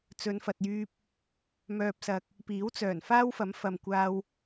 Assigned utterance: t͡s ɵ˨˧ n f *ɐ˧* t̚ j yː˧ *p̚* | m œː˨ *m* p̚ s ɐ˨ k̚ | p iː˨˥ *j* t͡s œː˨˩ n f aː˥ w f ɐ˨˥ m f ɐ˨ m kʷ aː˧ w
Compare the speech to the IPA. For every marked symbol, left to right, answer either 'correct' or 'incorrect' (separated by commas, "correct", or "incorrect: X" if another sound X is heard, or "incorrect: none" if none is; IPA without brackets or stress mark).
incorrect: ɐ˨, correct, incorrect: none, incorrect: w